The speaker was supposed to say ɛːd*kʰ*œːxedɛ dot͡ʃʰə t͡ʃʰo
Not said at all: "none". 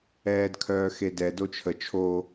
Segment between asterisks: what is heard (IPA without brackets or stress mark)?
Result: kʰ